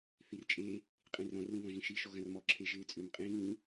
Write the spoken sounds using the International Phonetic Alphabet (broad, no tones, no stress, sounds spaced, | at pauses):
θ i r t͡ʃʼ e | qʼ ĩ r ɔ̃ r l ĩ β ɔ̃ ʒ ĩ ʃ i ʃ ɔ ɣ ɐ̃ r m ɔ ǁʰ e ʒ ɪː t͡sʼ ʏ m qʼ ĩː